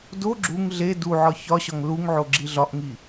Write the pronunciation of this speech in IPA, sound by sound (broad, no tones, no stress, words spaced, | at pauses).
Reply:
do ɡ͡ǁuŋ ɮe duʕɒ çɒɕɒŋ luŋʕoɡ͡ǁi ɮɒʔŋi